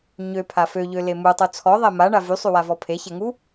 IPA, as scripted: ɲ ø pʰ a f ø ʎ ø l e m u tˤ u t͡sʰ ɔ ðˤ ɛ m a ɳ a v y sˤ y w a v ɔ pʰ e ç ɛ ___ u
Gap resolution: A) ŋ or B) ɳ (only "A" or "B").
A